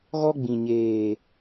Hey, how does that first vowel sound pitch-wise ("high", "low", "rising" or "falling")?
high